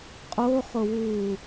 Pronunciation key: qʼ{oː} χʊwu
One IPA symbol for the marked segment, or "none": o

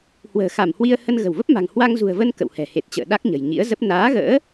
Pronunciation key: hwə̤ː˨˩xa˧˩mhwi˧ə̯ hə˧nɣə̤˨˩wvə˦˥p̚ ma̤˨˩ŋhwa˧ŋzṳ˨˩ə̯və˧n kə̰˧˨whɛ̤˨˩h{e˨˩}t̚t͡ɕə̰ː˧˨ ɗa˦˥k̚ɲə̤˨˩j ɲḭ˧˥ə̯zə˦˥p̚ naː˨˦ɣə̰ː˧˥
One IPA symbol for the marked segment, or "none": e˨˩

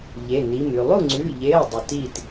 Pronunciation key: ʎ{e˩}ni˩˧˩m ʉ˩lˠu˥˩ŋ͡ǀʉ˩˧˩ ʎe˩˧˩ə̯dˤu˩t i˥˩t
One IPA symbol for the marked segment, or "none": e˩˧˩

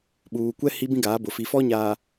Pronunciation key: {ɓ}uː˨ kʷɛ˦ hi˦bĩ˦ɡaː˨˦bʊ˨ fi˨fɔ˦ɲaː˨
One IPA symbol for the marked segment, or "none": ɓ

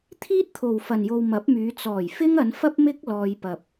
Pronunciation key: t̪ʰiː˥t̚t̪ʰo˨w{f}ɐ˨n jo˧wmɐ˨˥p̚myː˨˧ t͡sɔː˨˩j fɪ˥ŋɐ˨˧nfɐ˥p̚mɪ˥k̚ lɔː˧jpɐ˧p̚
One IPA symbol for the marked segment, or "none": f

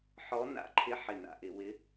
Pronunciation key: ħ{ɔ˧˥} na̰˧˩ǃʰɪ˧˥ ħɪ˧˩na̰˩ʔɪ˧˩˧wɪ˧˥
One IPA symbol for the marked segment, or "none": ɔ˧˥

